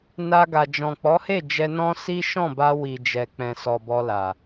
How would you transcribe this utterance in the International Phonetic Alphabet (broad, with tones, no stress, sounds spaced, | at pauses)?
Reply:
n a˧ ɡ a˨ d͡ʒ ɔ̃˨ k͡p ɔ˨˦ h e˦˨ d͡ʒ ɛ˧ n ɔ̃˦ s i˦ ʃ ɔ̃˦˨ b a˧ w i˨ d͡ʒ ɛ˨ k͡p ɛ̃˨ s ɔ˨ b ɔ˧ l a˨